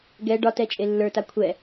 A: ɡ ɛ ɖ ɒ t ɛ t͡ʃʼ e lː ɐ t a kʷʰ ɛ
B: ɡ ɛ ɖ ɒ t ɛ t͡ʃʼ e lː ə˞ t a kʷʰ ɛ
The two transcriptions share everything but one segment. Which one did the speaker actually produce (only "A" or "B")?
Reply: B